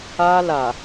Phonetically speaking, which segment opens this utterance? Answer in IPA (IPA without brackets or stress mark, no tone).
a